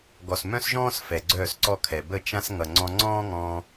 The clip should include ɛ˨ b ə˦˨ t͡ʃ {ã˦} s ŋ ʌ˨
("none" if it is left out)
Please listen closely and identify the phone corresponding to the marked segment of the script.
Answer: ã˦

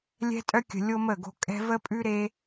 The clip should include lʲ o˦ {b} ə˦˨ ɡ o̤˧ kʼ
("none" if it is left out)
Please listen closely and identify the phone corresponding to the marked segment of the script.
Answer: m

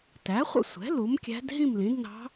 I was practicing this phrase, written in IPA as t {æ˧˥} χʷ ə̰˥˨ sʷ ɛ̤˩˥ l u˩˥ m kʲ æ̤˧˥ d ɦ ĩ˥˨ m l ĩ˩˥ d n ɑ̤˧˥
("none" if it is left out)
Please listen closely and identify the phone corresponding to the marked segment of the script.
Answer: æ˩˥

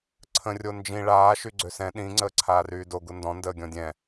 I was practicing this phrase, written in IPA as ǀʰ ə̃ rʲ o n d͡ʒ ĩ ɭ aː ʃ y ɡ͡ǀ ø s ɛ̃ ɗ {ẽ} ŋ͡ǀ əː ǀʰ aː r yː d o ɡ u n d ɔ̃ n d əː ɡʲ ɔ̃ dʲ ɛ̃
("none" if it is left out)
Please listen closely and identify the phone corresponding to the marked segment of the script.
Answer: ĩ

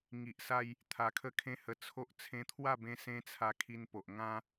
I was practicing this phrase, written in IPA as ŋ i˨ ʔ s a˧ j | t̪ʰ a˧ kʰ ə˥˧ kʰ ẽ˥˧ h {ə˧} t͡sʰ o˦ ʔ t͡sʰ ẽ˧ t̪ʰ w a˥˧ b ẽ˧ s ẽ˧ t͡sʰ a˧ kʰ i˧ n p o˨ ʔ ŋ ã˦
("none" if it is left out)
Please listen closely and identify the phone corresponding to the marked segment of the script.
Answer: ə˧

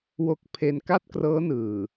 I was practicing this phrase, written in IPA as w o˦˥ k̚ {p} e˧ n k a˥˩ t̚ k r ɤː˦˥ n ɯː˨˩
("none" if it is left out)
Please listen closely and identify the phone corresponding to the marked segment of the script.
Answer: pʰ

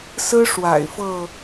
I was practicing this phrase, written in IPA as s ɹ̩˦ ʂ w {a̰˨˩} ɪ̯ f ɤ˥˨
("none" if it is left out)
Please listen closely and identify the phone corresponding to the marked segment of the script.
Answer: a̰˨˩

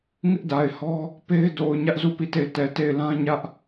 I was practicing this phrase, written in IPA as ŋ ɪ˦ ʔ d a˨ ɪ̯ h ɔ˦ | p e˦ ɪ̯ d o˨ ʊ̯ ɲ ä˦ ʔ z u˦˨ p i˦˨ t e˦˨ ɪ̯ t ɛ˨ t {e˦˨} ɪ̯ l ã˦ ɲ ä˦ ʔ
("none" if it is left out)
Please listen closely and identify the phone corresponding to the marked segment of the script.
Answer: e˦˨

